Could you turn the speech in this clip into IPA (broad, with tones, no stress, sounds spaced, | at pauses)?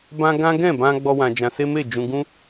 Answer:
b ã˦ ɡ ã˦ ɡ ɛ̃˦˨ b ã˧ ɡ͡b ɔ˦ w ã˧ d͡ʒ ã˧ s e˦ m e˦˨ d͡ʒ ũ˧ ɡ ũ˦